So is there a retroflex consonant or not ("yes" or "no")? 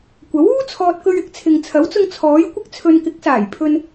no